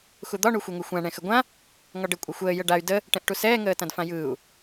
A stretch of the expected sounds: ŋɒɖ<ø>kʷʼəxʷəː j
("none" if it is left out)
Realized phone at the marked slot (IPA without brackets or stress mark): ɘ